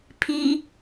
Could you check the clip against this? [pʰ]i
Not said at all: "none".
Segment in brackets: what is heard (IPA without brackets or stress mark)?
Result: pʰ